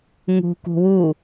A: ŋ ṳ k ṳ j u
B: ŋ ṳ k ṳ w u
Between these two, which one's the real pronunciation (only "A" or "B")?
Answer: B